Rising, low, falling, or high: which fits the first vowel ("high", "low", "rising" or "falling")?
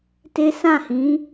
high